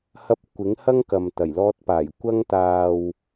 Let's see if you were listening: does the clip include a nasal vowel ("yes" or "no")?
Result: no